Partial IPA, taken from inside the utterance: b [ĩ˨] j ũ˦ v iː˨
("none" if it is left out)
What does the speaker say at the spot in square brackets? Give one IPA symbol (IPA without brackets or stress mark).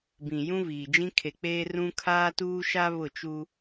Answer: ĩ˨